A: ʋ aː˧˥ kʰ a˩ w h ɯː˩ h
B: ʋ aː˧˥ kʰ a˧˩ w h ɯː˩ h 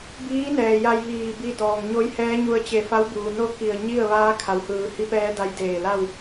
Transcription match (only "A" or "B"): A